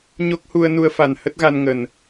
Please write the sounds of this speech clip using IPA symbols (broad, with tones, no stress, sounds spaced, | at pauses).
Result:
ɲ o˦˥ k̚ h u˧ ə̯ n u˧ ə̯ f a˨˩ n h ə˦˥ t̚ ɣ a˧ n ŋ ə˨˩ n